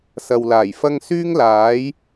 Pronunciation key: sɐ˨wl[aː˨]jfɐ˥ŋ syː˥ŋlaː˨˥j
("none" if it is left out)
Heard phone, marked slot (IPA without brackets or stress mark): aː˨˩